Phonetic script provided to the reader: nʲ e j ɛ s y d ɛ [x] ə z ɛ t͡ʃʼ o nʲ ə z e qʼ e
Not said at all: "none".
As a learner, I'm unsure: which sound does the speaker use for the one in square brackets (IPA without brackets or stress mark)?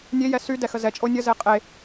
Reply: x